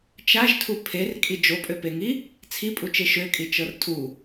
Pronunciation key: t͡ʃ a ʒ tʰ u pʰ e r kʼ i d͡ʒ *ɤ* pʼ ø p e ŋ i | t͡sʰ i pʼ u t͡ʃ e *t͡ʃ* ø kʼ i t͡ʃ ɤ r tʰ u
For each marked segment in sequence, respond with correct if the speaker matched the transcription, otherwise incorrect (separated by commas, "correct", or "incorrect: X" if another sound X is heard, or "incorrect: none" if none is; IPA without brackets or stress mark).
incorrect: o, incorrect: ʃ